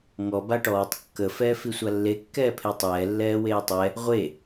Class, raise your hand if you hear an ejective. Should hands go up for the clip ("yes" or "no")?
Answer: no